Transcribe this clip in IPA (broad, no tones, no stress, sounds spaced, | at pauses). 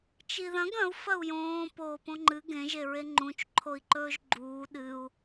t͡ʃ i ð ɐ̃ ɡ ɐ̃ u̯ f ɐ u̯ j õː p oː p õ ŋ͡ǃ ɨ ɡ ẽ ʒ e ɹ e ŋ͡ǃ ũ t͡ʃ ǃʰ o i̯ ǃ ɵː ʒ ɡ͡ǃ uː ɗ ɨ u̯